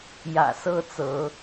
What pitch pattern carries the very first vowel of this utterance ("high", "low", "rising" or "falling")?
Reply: low